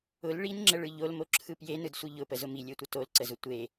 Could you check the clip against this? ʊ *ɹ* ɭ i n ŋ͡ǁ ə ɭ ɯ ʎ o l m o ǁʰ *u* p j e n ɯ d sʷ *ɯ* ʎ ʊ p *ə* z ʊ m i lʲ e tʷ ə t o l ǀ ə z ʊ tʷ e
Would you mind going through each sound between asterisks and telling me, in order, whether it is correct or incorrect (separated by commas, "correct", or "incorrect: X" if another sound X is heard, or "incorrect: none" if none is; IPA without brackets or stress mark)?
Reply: incorrect: l, incorrect: ɯ, correct, correct